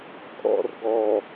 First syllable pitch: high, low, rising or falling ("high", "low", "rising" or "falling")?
low